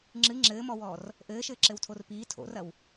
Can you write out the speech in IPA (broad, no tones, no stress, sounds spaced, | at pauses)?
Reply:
ŋ͡ǁ ɨ ŋ͡ǁ ɘː m ɔ w ɔː r | ʔ ɘː ʃ ɘː ǁ ɘ w tʰ o r p iː tʰ o̰ r ɐ w